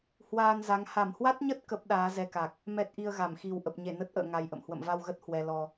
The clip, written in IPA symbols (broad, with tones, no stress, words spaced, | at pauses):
hwaː˧nza˨˦ŋ ha˧˩mhwa˦˥t̚ɲə˦˥t̚ kə˦˥p̚ɗaː˨˦zɛ˧ka˨˩k̚ | mɛ˦˥t̚ʔi˧ə̯ɣa˧˩m xi˨˩wʔə˨˩p̚ɲe˧˩ nə˦˥t̚ʔə̰ː˧˨ ŋa˧jʔə̰˧˨m hwə̰˧˨mva˧wɣə˦˥t̚ hwɛ˧lɔ˧